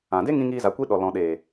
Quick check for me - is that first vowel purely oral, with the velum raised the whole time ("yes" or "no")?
no